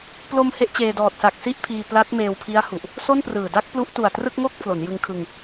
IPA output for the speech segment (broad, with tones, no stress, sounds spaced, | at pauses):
p l o˧ m h e˦˥ ʔ t͡ɕ eː˧ d ɔː˨˩ t̚ s a˨˩ k̚ s i˥˩ ʔ pʰ iː˧ p l a˦˥ t̚ m eː˧ w pʰ i˦˥ a̯ h u˨˩ ʔ | s o˥˩ n p r ɯː˨˩ d a˥˩ k̚ p l u˦˥ ʔ t u˨˩ a̯ t r ɯ˥˩ k̚ ŋ o˥˩ k̚ pʰ l o˩˦ n j ɯ˧ ŋ kʰ ɯ˧ ŋ